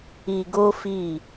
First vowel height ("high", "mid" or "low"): high